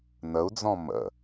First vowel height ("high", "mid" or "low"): mid